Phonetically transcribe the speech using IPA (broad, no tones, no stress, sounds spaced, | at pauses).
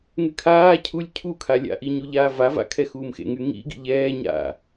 ŋ y kʰ aː cʰ u lʲ cʰ u kʰ a lʲ a̰ ʔ i ɲ u ʎ aː v a v a̰ kʰ ɛ x uː m x ḛ ŋ y ŋ ḭ ɡ ḭ ʎ ɛː ɲ a̰